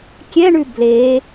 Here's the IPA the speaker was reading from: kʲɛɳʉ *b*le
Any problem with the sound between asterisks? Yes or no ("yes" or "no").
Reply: no